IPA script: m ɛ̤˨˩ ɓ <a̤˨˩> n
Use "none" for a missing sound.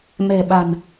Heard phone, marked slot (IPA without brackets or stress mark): a̤˨˩